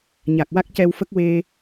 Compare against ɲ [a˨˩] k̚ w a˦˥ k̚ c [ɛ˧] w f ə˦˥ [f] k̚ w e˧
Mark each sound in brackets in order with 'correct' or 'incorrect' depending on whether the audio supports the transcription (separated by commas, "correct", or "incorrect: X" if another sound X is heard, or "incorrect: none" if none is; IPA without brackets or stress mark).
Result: correct, correct, incorrect: none